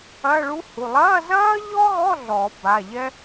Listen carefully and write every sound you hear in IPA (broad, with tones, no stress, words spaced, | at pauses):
ɐ˧˥˧ɭu˥hu˩˧˩ lˠɐː˧˥˧zɐː˥ʎɔ˥ɣɔ˧˥˧ ɮɔ˨˩˦ ba˩˧˩ʎɛ˥